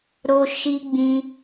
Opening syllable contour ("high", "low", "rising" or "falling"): high